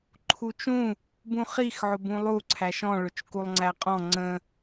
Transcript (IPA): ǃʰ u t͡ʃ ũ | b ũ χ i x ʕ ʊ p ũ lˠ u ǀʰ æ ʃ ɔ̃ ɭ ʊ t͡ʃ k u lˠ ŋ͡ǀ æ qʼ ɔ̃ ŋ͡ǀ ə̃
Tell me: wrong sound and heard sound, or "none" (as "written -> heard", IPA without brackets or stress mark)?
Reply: p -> b